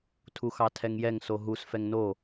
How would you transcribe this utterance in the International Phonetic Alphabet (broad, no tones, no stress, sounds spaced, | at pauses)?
tʰ u x ɑ tʰ ɛ ŋ j ɛ ŋ s o ɦ u s f ɛ ŋ n o